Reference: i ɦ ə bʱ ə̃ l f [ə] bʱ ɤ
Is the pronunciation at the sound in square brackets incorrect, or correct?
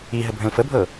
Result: correct